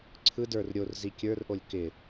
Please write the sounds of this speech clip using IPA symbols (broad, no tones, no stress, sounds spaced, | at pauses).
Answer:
ǀʰ ɯ d ə˞ r ɾʲ o r z i kʲ ə˞ r ʔ o lʲ k ɪ